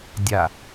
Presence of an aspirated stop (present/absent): absent